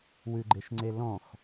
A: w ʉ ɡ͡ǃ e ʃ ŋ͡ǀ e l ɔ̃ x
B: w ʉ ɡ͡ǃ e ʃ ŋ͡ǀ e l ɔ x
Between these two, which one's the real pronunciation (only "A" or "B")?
A